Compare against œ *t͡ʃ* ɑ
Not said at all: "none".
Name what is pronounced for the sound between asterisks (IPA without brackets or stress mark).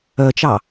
t͡ʃ